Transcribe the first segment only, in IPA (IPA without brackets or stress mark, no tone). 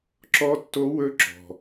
ǁ